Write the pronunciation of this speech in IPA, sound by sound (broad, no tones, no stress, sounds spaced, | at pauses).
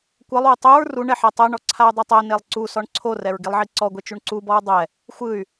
kʷ ɤ lˠ w ɯ tˤ u ɹ r u ɳ ɛ ħ ɛ tˤ ɛ ɳ ɔ ǀʰ a y̯ dˤ ɛ tˤ ɛ n e lˠ ǀ u s ɔ ɳ ǀʰ o r ɛ ɹ ɡ i lˠ ʕ i ǀ ɔ ɡʷ e t͡ʃ u ɳ ǀ u b ɔ ɹ dˤ ɛ | xʷ ɯ y̯